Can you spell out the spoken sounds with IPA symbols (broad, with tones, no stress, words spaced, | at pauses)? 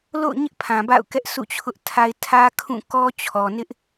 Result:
lo̰˦˨ʊ̯ɲɪ˦ʔ pʰã˨ba̰˦˨ʊ̯ kɛ˦ʔsʰṵ˦˨ t͡ɕʰʊ˦ʔtʰa˦ɪ̯ tʰä˦kʰũ˦˨kɔ˦ t͡ɕʰɔ˨nɪ˦ʔ